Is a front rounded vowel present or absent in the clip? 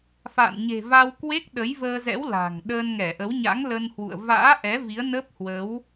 absent